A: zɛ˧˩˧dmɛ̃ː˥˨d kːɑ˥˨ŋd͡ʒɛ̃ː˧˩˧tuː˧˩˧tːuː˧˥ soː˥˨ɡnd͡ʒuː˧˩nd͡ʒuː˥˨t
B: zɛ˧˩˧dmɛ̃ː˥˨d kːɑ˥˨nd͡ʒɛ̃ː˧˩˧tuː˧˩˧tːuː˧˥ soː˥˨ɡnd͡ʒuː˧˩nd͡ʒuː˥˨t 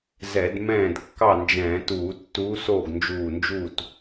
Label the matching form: B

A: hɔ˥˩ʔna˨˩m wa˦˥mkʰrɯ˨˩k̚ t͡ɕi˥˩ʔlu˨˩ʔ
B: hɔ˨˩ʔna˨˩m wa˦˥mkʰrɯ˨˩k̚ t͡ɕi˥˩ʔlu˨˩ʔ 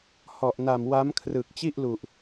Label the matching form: B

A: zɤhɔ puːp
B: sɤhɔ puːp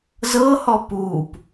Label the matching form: A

